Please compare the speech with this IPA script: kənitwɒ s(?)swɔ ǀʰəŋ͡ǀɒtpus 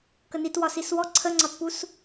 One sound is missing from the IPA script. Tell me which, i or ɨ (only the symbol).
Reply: i